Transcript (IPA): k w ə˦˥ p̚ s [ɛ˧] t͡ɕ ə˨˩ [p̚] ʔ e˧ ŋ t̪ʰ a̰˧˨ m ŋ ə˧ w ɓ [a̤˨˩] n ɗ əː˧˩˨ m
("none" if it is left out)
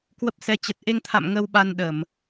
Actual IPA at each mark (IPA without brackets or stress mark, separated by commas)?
ɛ˧, t̚, a˧